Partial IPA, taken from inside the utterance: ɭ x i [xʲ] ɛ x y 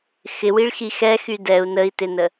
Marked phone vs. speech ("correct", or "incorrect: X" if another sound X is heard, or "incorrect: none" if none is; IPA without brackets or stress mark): incorrect: x